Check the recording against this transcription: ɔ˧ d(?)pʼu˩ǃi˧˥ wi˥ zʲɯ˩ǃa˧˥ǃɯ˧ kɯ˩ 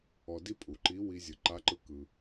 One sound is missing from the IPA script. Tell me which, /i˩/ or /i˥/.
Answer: i˥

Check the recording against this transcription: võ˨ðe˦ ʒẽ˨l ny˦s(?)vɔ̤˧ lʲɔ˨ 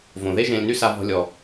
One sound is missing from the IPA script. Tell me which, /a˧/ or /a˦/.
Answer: a˧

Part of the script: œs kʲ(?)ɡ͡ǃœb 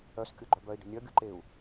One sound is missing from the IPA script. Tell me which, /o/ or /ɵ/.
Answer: o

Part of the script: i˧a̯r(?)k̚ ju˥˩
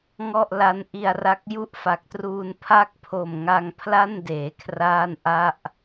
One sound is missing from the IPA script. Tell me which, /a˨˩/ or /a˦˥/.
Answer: a˦˥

